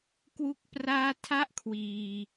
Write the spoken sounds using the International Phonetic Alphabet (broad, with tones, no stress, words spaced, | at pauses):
kwu˥˩k̚praː˥˩ tʰa˥˩ʔkʰwiː˧